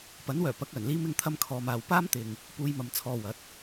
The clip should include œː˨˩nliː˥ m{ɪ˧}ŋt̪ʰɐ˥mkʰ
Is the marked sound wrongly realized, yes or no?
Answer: yes